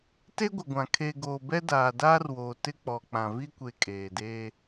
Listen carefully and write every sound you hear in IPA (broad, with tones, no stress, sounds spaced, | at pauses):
t e˦ ɡʷ ɪ˨ ɡʷ ã˨ kʰ e˨ ɡ oː˨ b ɛ˦ d aː˨ d aː˦ r w oː˨ t ɪ˦ k͡p ɔ˨ k͡p ã˨ v i˦ kʷ e˨ kʼ eː˨ d eː˦